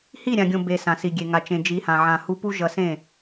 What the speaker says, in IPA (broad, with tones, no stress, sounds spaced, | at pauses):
h i˦˨ ɾʲ ã˨ ɡʲ õ˨ b e˨ s ã˨ s i˨ ɡʲ e˨ ŋ a˨ t͡ʃ ẽ˨ d͡ʒ i˨˦ h ã˨ ʕ ã˨ h u˧ p u˦ ʒ ʌ˧ s ẽ˦˨